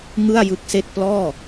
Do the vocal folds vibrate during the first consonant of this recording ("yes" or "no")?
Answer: yes